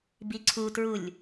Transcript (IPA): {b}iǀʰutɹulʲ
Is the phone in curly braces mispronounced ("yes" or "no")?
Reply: no